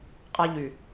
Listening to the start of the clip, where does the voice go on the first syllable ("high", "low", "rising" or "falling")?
high